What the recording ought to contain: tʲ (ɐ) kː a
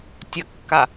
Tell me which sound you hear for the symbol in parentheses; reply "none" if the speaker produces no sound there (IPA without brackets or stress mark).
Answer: ɐ